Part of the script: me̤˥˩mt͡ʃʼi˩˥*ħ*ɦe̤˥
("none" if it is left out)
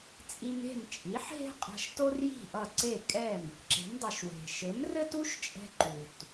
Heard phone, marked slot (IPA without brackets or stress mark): ħ